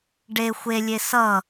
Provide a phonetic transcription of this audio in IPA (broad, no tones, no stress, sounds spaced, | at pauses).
ɖ e xʷ e lʲ e s ʌ